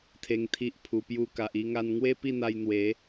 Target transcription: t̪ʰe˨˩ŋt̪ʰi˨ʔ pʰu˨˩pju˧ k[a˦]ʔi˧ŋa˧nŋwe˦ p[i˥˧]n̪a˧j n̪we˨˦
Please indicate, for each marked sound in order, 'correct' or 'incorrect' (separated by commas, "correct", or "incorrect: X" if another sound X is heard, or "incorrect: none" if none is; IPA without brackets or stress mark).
incorrect: a˨, correct